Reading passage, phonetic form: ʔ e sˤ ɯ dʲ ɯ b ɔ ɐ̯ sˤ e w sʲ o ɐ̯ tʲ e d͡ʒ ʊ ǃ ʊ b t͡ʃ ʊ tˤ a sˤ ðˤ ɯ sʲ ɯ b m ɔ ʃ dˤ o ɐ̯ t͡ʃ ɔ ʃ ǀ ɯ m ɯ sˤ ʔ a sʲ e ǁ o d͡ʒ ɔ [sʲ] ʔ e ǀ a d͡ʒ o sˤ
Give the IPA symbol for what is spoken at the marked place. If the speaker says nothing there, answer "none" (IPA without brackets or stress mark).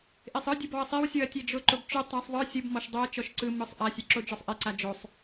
sˤ